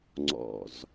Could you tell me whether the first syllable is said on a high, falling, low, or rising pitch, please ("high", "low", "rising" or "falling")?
low